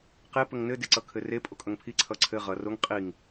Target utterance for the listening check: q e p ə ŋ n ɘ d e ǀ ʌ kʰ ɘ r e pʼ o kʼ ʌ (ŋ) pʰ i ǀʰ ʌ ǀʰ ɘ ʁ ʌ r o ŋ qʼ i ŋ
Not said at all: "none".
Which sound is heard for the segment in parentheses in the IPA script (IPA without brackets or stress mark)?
ŋ